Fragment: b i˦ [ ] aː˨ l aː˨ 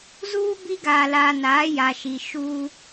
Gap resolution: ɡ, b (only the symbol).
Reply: ɡ